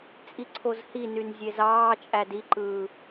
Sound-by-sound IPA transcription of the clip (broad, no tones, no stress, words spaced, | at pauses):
t͡sʼiǀʰozhinyn zʲezɑːt͡ʃʼæ diǃɯː